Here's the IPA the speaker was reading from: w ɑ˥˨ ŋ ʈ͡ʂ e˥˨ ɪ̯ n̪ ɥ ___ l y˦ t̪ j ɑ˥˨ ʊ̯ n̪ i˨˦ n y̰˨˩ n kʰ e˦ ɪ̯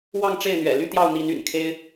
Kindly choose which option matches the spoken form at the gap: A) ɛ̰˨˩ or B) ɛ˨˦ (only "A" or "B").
A